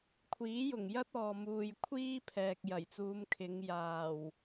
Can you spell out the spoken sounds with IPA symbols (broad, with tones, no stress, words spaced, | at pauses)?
kʷʰiː˨˥jʊ˨˩ŋjɐ˥t̚ɔː˨ muː˨jkʷʰiː˥ pʰɛː˨k̚jɐ˨˩jt͡suː˨˧mkʰɪ˨˧ŋ jaː˨˩w